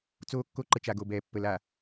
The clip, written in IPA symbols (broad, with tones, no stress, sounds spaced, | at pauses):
t͡s oː˦ kː o˦ ǃ ə˨ t͡ʃ a˨ ɡ o˨ b ɛː˨ pː ə˨ l a˨